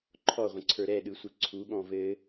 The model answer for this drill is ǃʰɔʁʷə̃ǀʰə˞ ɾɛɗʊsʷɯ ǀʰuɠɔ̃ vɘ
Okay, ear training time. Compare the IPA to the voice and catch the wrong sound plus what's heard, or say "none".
ʊ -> ɯ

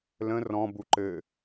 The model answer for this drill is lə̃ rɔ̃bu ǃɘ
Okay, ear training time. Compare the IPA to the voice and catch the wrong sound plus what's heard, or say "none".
none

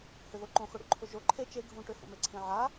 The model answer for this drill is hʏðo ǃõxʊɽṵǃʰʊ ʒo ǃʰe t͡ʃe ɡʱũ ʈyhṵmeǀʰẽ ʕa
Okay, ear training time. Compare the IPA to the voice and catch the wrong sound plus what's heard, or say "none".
y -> ʏ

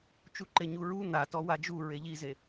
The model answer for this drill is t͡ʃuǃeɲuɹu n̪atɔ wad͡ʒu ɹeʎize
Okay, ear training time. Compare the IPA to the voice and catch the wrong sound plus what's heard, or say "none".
none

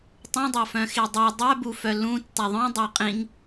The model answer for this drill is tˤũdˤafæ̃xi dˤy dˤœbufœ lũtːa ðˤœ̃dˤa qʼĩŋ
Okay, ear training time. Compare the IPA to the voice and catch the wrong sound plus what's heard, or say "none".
æ̃ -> œ̃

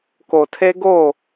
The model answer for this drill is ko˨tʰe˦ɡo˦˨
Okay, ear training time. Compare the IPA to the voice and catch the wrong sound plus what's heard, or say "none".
none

